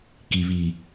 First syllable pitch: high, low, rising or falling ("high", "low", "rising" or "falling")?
low